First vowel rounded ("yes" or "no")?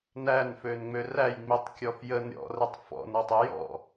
no